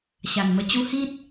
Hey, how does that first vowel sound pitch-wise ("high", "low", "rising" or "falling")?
low